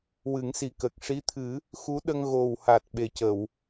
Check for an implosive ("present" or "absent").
present